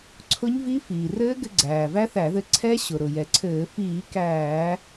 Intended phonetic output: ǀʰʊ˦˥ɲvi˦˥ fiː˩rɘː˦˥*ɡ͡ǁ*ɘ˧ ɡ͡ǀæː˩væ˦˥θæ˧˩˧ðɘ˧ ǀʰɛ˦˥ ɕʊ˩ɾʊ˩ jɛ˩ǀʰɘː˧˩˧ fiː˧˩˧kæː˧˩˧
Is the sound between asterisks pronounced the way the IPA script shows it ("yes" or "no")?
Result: no